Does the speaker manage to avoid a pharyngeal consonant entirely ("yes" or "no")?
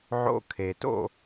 no